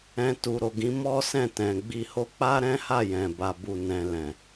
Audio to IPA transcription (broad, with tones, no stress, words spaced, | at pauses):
ɛ̃˧tu˨ ɾo˨ɡĩ˨˦ mɔ˦sɛ̃˦˨ tɛ̃˨ɡ͡bi˧ho˦ k͡pa˦ɾɛ̃˦ha˦˨jɛ̃˨ ba˧bu˧nɛ̃˧ lɛ̃˨